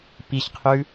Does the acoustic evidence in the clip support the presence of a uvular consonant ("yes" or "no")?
yes